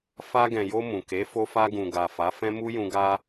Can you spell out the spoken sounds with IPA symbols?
f a˧ ɡ ɛ̃˨ j o˧ m ũ˨ k e˨˦ f o˧ f a˧ ɡ ũ˨ ɡ a˨ f a˨˦ f ɛ̃˦ m u˦ j ũ˧ ɡ a˧

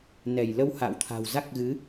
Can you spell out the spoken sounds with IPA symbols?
n ɛ˧˩ j l ə˧ w h a̰ː˧˨ w t̪ʰ a̤˨˩ w z a˦˥ k̚ ɣ ɨ˨˦

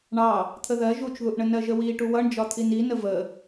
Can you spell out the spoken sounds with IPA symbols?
ɳ ɑ | t̪ʰ ə ð ɜ ʒ u t͡ʃ ð u ʔ ɳ ə n ɜ ʒ ə w i ʈ u w ʌ ɳ d͡ʒ ɒ t̪ʰ i n i n ə v ə

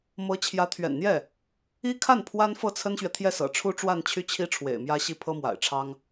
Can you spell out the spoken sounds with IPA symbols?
m ɤ˧˥ t͡ɕʰ j ä˧˥ t̪ʰ ɥ ɛ̰˨˩ n n̪ j ɛ˥˩ | i˥ kʰ a˥˩ n pʰ w a˥ n f ɤ˥˩ t͡sʰ ə˥ n ɕ ɥ ɛ˨ t̪ʰ j ɛ˥˩ s ɤ̰˨˩ ʈ͡ʂʰ u˥ ʈ͡ʂ w a˥˧ n t͡ɕʰ y˥˩ t͡ɕʰ i˥ ʈ͡ʂʰ w ḛ˨˩ ɪ̯ m j ä˥ ɕ i˥ pʰ ɤ˥ m w a̰˨˩ ɪ̯ ʈ͡ʂʰ ɑ˥ ŋ

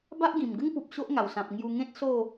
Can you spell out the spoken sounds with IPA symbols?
b a˦ ʔ ɡ ĩ˨˩ m ɡ ə˦ ŋ p u˨ p̚ ɕ o˦ ʔ ŋ a˨˩ w s ã˨ p̚ ŋ j u˧ ŋ ẽ˦ t̚ s o˥˧

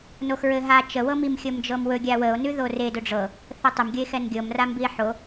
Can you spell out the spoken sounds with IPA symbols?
n o x ɹ ɘ ɦ a t͡ʃ ə w ɤ m i m xʲ ɤ m d͡ʒ ɤ m w ɵ ɡʲ a w ə o̯ n ʉ ð o r e d ɵ ɖ͡ʐ ɤ | θ ɘ tˤ ɘ m ɡʲ ə e̯ x ɛ n ɡʲ ɤ m r a m b i e̯ ħ o

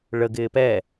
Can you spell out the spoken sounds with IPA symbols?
ɭ ə ɡ ɪː p ɛ

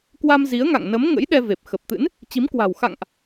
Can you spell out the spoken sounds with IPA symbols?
k w a˧ m z i˨˦ ə̯ ŋ a̰˧˨ ŋ n ə˨˦ m ŋ ə̰˧˥ j ɗ ɛ˧ v e˨˩ p̚ x ə˨˩ p̚ t̪ ɨ̰˧˥ n | t͡ɕ i˨˦ m k w a̤˨˩ w x a̰˧˨ ŋ ʔ

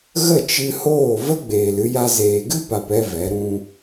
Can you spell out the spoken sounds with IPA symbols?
ɣ ə˦˨ t͡ʃ ɨ˧ h oː˦˨ v ə˦ ɡ͡b eː˨ l ɨ˧ j a˧ z eː˨ ɡ ɨ˦ p a˨ p ɛ˦ v ɛ˨˦ ɾ ũ˧

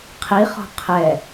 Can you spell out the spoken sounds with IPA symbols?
qʰ i χ ɔ̤ qʰ ɛ

